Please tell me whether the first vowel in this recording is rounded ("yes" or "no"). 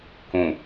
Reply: yes